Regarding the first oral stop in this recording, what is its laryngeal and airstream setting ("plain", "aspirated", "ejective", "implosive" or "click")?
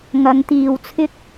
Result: plain